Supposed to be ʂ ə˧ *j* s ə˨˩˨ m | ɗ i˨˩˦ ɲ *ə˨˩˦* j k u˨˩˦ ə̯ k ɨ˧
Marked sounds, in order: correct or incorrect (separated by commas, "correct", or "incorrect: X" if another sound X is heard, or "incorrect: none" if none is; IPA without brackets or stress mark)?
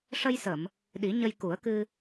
correct, incorrect: ə˧